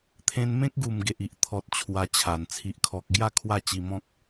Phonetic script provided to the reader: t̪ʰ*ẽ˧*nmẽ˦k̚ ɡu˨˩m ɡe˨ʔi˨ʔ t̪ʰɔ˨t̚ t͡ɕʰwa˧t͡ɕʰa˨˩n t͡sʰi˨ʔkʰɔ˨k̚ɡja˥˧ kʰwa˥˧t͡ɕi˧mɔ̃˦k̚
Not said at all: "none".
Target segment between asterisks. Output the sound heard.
ẽ˧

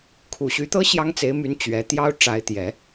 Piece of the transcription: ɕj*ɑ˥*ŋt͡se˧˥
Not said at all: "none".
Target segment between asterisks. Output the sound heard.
ɑ˥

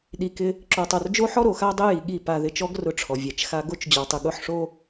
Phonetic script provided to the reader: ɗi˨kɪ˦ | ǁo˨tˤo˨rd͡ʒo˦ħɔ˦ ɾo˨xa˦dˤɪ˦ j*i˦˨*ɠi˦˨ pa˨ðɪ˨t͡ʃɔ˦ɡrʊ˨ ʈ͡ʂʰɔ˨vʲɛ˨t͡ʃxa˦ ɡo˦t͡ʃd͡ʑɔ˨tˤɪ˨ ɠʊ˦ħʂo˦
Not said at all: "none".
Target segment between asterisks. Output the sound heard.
i˨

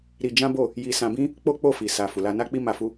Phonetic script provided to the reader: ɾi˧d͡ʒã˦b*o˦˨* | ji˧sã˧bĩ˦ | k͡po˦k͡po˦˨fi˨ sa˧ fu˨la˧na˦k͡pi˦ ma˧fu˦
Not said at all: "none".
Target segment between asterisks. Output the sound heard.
o˦˨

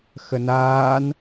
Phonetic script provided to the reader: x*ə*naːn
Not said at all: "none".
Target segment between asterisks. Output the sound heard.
ə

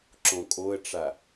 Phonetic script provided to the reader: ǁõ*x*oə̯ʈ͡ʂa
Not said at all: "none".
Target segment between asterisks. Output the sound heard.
kʼ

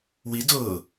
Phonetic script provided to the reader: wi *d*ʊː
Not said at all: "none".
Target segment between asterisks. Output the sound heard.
d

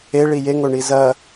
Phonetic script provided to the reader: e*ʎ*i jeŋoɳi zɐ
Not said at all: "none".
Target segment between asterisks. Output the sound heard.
ɭ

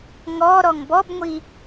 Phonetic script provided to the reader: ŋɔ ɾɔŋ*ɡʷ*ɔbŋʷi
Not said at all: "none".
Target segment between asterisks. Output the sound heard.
b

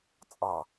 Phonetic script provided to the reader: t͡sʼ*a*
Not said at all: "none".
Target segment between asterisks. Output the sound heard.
ɑ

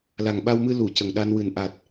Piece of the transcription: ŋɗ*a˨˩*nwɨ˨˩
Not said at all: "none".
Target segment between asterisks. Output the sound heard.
a˧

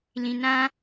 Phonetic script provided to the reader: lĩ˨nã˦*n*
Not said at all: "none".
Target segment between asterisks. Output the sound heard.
none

